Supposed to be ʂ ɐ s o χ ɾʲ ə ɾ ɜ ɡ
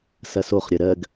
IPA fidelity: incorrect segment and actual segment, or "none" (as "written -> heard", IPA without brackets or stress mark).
ʂ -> s